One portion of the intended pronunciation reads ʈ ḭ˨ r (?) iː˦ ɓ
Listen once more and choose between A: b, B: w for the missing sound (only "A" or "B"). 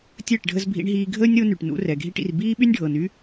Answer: A